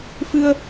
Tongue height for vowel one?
high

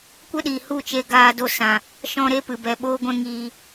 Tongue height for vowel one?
mid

